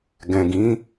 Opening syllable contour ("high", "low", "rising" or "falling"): low